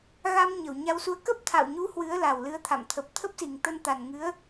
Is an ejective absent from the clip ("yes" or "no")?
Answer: yes